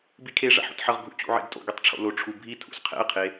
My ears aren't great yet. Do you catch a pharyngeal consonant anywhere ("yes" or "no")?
yes